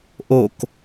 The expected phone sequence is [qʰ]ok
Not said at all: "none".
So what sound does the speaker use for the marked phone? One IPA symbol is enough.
ʔ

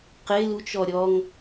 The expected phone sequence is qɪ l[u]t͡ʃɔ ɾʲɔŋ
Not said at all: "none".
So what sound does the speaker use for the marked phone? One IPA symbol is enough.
u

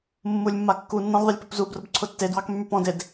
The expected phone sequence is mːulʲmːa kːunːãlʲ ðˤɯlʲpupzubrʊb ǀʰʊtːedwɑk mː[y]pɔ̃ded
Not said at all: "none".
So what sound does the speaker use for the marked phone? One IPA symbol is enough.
y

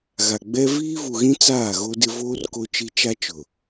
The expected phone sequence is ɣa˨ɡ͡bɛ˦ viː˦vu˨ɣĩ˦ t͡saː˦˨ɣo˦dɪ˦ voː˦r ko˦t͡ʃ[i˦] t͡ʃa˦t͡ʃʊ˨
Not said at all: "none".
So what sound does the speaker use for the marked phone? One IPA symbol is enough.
i˦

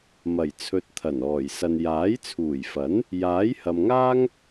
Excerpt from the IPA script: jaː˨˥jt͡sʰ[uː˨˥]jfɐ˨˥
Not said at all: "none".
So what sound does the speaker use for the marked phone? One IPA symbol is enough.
uː˨˩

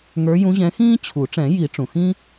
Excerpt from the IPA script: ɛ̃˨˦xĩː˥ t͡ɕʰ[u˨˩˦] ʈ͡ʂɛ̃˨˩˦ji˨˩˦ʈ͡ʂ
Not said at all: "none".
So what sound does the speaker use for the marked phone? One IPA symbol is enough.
u˨˩˦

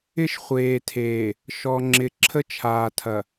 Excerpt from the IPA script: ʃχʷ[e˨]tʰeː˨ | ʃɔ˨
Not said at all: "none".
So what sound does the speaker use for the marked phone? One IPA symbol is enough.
eː˨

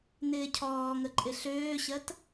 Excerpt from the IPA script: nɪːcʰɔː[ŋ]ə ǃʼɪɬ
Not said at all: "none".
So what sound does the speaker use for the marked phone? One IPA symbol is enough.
ŋ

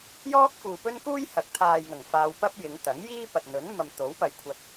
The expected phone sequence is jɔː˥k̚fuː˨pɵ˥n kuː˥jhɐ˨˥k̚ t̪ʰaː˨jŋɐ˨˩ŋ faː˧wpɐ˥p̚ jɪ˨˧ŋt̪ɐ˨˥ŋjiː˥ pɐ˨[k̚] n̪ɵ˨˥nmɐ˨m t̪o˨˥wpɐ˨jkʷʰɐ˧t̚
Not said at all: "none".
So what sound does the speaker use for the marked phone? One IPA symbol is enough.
t̚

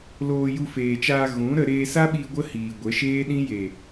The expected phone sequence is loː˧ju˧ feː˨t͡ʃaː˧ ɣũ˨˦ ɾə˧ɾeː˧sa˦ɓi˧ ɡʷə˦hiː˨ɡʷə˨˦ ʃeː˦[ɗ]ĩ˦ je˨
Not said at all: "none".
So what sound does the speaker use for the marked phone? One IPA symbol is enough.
ɗ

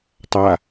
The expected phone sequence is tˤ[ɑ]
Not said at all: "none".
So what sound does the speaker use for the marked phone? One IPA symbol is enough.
a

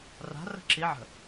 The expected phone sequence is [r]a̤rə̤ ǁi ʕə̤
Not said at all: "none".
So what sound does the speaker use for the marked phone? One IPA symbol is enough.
r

